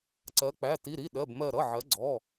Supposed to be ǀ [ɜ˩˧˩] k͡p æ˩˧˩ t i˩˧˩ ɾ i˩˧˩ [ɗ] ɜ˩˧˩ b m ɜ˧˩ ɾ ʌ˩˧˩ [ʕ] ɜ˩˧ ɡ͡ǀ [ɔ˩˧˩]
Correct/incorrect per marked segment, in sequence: incorrect: ɜ˩˧, correct, correct, correct

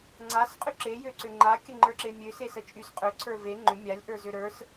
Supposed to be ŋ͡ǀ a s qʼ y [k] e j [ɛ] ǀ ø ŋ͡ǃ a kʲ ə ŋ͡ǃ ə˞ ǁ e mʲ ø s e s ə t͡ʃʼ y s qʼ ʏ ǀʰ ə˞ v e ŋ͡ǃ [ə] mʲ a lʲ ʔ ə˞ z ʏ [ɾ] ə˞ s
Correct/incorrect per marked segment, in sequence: incorrect: ǁ, incorrect: ø, incorrect: ʏ, correct

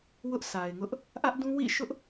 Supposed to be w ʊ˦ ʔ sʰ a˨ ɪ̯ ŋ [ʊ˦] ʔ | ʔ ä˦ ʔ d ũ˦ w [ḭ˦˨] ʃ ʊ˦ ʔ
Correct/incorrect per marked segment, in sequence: correct, correct

